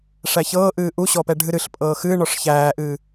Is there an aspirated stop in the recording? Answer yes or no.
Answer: no